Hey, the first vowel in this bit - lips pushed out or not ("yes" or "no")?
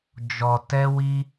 yes